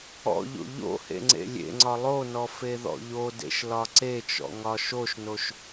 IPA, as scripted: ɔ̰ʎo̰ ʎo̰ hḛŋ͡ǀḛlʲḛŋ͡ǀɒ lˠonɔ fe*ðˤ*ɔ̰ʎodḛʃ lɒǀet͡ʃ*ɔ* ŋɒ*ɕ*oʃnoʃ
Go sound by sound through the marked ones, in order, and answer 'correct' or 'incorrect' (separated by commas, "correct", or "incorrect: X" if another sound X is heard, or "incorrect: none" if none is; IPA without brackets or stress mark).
incorrect: ð, incorrect: ɔ̰, incorrect: ʃ